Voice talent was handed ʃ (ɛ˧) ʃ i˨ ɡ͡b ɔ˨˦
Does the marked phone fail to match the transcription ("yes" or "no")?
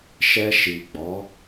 no